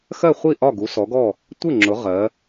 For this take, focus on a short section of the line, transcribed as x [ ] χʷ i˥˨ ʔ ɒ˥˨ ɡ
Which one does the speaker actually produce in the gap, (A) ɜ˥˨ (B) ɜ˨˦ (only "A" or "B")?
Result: A